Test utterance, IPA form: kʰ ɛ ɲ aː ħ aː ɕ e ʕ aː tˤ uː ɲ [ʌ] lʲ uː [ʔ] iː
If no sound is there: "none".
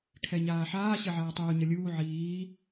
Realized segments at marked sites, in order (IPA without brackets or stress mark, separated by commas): ʌ, ʕ